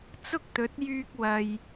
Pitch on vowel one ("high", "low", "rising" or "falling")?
high